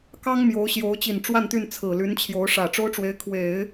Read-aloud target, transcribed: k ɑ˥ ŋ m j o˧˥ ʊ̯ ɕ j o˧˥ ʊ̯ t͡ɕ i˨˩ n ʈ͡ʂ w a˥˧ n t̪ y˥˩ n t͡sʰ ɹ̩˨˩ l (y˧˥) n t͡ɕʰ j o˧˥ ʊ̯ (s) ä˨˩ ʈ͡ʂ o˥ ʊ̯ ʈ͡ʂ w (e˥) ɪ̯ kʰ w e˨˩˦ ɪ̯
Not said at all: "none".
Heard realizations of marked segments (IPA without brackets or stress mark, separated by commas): y˧˥, ʂ, e˧˥